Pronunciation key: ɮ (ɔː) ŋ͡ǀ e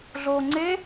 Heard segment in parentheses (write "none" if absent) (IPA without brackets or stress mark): oː